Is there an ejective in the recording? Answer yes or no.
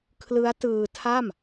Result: no